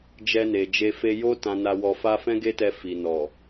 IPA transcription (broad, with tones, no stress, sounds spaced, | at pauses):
d͡ʒ ɛ˧ n e˨ d͡ʒ e˧ f e˧ j o˦ t ã˧ n a˧ w ɔ˧ f a˦ f ɛ̃˦ ɡ e˦ t ɛ˧ f i˨ n ɔ˨